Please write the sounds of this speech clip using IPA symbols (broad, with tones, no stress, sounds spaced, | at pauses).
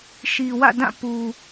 ʃ i˨ w ä̰˦˨ d ã˦˨ p u˨